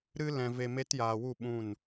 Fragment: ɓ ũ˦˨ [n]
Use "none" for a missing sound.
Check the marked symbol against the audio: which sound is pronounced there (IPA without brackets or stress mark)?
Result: n